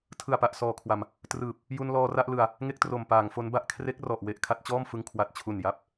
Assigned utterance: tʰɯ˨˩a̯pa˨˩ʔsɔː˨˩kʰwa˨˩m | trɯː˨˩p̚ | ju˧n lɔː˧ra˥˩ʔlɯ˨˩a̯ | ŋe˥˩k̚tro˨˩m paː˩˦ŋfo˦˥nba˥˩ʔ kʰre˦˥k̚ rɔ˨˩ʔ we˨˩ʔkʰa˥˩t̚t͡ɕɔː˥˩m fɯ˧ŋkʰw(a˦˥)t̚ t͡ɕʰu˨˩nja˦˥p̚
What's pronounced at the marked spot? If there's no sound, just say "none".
a˨˩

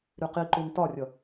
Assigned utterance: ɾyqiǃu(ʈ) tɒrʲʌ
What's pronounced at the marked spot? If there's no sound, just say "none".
n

